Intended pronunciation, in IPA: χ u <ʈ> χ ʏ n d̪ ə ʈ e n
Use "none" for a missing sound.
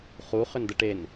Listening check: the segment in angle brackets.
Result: none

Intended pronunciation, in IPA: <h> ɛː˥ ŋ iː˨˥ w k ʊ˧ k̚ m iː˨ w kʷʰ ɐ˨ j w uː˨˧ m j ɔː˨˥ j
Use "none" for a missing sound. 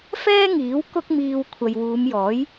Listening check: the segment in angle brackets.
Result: f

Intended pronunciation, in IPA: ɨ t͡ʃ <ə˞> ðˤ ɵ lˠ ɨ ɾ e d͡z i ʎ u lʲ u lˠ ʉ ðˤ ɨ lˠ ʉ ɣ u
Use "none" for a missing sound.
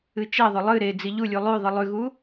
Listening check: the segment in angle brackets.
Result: ɐ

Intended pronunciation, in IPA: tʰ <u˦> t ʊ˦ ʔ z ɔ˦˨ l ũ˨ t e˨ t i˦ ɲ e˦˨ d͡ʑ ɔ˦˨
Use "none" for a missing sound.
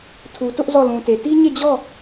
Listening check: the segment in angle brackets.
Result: u˨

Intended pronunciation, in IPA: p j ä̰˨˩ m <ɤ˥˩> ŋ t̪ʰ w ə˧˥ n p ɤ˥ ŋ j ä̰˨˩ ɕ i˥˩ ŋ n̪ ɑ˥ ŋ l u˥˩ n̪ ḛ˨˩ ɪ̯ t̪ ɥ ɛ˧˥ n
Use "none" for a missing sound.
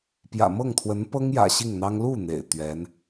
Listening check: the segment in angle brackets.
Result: ɤ˥˩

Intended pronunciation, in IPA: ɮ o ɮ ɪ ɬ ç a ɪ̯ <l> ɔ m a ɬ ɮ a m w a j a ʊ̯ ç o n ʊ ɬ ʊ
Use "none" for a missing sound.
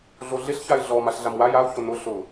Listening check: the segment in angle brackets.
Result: ɮ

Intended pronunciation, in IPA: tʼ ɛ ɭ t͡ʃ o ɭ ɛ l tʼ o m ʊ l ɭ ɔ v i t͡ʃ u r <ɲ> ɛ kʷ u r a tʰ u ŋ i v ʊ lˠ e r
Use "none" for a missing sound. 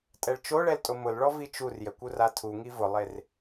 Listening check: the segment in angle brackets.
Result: j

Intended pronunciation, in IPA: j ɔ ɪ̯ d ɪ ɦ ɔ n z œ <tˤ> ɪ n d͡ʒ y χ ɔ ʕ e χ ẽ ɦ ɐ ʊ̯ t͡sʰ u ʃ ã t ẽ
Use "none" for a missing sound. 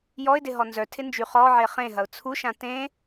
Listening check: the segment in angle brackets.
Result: tʰ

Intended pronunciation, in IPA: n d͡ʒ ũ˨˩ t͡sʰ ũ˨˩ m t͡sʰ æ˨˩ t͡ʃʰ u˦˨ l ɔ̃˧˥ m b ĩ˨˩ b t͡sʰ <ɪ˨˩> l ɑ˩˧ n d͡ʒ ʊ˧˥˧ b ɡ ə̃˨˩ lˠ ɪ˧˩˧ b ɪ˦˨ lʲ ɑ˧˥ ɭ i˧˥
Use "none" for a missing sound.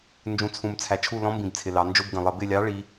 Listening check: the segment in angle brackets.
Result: ɪ˨˩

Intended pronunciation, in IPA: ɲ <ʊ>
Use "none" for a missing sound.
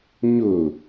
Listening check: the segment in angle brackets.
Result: ʊ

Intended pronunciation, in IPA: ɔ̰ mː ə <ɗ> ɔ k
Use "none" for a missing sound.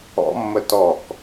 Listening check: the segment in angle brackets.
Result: t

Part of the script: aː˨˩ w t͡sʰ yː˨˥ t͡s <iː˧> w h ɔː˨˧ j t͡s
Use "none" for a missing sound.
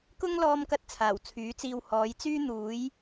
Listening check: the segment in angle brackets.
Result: iː˧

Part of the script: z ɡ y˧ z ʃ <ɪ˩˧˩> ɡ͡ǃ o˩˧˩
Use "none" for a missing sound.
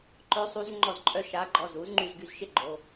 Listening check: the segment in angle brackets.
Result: ɪ˥˧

